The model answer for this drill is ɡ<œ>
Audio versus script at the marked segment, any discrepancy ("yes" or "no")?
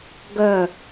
no